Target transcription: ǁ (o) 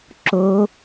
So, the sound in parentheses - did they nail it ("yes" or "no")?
yes